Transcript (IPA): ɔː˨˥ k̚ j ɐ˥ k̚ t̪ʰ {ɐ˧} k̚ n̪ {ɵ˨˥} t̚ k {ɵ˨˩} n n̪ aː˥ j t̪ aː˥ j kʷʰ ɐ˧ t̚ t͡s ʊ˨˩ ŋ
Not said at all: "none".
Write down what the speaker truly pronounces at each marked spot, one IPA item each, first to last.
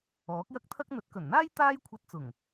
ɐ˥, ɵ˨˥, ɵ˨˩

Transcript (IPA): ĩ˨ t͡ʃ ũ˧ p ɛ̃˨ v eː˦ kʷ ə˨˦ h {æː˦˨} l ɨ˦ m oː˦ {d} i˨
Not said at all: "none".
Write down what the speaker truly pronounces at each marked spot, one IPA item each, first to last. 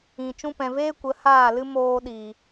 aː˦˨, ɗ

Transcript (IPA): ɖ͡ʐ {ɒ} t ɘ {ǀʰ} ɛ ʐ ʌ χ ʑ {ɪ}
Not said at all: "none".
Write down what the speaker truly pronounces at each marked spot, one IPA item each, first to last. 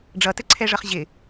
ʌ, ǀʰ, ɪ

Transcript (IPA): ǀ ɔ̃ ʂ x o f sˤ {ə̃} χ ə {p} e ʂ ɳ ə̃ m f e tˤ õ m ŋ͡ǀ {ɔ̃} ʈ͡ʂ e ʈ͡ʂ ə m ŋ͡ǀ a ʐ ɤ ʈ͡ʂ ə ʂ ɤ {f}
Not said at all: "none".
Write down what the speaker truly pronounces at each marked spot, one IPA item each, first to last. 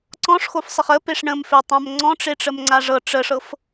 ə, p, ɔ̃, f

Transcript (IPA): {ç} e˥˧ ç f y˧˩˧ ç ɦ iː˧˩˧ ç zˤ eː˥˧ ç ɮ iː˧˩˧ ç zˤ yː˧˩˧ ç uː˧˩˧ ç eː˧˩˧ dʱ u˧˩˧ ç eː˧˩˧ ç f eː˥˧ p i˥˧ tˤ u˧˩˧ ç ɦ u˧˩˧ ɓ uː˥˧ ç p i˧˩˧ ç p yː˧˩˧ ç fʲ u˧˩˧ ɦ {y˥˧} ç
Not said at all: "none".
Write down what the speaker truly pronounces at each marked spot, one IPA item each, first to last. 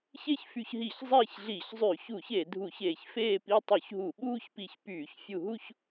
ç, u˥˧

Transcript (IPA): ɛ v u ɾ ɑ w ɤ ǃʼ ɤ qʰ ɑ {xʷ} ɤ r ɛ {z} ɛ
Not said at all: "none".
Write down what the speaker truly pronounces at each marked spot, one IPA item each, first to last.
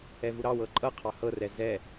h, z

